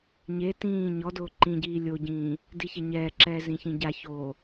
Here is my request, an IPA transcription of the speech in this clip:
ɲ e t ĩː ɲ ɔ d ʊː ǃ ĩ ɟ iː lʲ o ɟ ĩː | d i ç ɛ ɲ ɛː ǁ ɛː z ĩ ç ĩ ɟ a ç oː

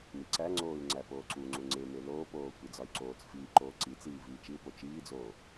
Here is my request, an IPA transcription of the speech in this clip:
m i ǀ æ ŋ͡ǀ oː y̯ ŋ͡ǀ æ p oː ǀ u ŋ͡ǀ u ŋ͡ǀ e m e l oː p oː kʷ i d͡z ɒ y̯ ǀ oː t͡s f iː ǃ oː ǀ i t͡s iː v iː t͡ʃ i u̯ p o t͡ʃ iː d͡z oː

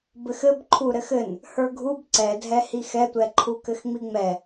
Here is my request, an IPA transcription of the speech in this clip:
b ɘ x ɘ b ǃʰ u ɾ ɘ x ɘ n | h ə˞ ɡʱ u b ǀ ɛ dʱ ɛ h i x ɛ tʷ ɛ ǃʰ u k ɘ x ŋ͡m i ŋ͡m ɛ

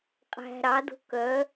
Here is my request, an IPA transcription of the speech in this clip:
qʼ æ̤ ɾ ɑ d o̤ k œ

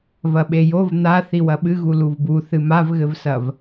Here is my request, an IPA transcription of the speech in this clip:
v ɐ ɓ e j o v n̪ a θ i w ɐ ɓ ɨ ɣ u l u v b u θ ɨ m a v ɣ ɘ v s ɐ v

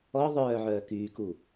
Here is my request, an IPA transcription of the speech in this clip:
ɔ ðˤ œː ʕ œː k yː k u

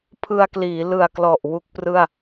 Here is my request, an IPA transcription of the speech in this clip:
pʰ ɯ˧ a̯ k l iː˩˦ l ɯ˨˩ a̯ k l ɔ˨˩ ʔ w u˦˥ k̚ p r ɯ˥˩ a̯

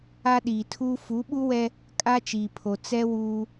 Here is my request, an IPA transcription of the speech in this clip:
a˦ ɗ iː˨ tʰ uː˦ f u˨˦ ɓ u˦ w ɛ˦ | kʼ a˦ t͡ʃ iː˨ pʰ o˨ t͡s ɛ˦ w uː˦

